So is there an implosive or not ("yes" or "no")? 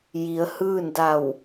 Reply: no